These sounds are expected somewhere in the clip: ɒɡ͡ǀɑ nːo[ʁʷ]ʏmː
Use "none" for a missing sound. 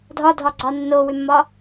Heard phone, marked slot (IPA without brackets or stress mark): w